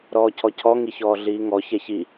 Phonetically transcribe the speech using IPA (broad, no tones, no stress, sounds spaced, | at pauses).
ɾ ɔː cʰ ɔ cʰ ɔ ŋ i ç ɔː ɮ iː ŋ ɔ ç ɛ ç i